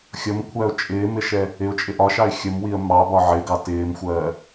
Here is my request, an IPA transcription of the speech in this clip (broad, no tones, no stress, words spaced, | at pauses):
xʲʌmkʷʰæʊ̯ t͡ʃʼɪːmɪʃɛ | ɪʊ̯t͡ʃʼɪ ʔɒʃɑɪ̯ xʲəmwiə̯ mɑbɒ ʕɪɡɑ tɪːmxʷɜː